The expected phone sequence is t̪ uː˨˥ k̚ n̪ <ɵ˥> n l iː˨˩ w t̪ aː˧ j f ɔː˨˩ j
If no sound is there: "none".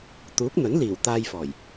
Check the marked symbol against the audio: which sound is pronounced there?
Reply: ɵ˨˥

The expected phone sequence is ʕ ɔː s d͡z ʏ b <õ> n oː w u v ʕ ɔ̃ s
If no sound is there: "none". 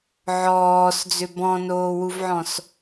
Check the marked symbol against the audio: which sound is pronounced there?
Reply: ɔ̃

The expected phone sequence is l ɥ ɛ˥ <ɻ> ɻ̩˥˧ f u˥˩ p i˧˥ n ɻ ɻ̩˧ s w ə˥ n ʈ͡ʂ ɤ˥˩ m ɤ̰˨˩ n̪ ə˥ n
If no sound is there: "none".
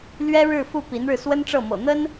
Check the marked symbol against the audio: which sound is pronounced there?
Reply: ɻ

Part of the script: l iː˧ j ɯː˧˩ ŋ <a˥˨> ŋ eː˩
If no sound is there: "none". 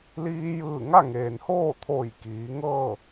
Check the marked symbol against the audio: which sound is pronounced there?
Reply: a˥˨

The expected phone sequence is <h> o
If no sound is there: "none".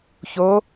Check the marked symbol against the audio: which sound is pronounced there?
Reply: ç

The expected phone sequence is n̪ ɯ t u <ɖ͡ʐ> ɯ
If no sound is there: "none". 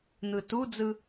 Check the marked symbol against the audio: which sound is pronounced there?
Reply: d͡z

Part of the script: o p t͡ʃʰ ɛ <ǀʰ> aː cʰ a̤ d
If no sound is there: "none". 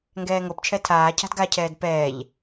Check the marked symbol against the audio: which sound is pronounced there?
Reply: tʰ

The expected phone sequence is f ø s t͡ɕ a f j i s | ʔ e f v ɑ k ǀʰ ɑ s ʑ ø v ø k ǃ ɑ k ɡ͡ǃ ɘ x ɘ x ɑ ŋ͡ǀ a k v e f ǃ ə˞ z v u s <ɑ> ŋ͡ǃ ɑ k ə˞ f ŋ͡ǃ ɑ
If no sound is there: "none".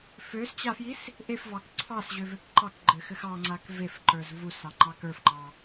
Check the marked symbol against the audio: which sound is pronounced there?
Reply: ɑ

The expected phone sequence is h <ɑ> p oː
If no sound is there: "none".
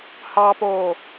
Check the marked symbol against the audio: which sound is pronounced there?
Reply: ɑ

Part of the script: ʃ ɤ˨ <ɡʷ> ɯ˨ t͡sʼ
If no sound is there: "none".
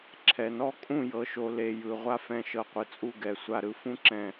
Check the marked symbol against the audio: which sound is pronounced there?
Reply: qʷ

